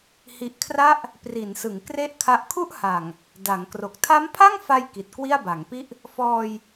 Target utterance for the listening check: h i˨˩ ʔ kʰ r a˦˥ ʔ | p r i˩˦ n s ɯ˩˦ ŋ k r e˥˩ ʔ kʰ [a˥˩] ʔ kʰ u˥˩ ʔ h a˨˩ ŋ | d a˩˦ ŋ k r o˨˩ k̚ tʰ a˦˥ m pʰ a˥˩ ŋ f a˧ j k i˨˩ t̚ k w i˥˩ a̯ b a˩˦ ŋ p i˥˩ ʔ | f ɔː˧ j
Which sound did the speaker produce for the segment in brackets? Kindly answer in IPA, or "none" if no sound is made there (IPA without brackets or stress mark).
a˦˥